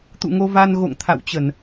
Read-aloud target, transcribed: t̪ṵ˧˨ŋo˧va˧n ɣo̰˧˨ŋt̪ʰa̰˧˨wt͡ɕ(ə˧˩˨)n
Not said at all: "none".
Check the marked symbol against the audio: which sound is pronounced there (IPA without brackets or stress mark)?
ə˧˩˨